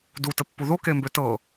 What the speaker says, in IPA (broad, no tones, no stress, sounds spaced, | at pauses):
d u t ə pː u ð o k e m b ø t ɤ